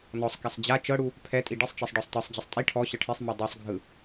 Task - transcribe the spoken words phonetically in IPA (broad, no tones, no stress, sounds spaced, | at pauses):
n ɔ sˤ k a sˤ d͡ʑ a t͡ʃ ɤ ɽ u | pʰ ɛ tʼ i ɖ i sˤ t͡ʃ i sˤ ɖ ɔ sˤ t ɤ sˤ d͡ʑ ɤ sˤ tʼ i ʈʰ ɔ ɕ ɤ ʈʰ e sˤ m e dˤ e sˤ ɡʱ ɯ